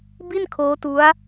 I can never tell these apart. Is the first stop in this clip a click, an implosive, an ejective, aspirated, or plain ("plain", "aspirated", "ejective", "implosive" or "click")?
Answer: plain